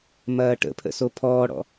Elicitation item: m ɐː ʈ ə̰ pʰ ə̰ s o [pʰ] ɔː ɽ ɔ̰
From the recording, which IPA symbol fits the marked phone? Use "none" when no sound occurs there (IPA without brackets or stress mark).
pʰ